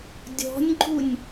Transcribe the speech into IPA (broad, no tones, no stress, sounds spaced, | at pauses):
dʲ ɔ̤ nʲ ɡ͡ǃ u nʲ